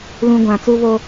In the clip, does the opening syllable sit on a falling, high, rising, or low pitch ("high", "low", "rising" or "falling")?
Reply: high